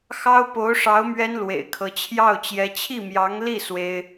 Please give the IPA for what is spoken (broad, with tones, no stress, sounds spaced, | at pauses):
x ɑ˥ ʊ̯ p o˧˥ ʊ̯ ʂ ɑ˧˥ ʊ̯ m ɥ ɛ˥ n l w ḛ˨˩ ɪ̯ kʰ ɤ˧˥ t͡ɕʰ j ɑ˥˩ ʊ̯ t͡ɕ j ɛ˧˥ t͡ɕʰ i˥˩ m j ɑ˧˥ ŋ l i˥˩ s w e˥ ɪ̯